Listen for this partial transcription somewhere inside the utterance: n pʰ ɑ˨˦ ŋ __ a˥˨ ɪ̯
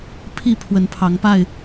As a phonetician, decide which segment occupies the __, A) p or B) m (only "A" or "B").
A